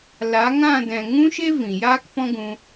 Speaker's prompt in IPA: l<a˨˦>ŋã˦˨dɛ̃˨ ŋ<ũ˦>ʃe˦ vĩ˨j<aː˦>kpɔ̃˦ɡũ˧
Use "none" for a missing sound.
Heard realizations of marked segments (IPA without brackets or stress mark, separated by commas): a˨˦, ũ˦, aː˦